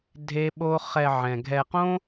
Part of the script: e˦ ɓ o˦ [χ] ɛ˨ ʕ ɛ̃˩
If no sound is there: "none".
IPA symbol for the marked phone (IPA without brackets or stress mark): χ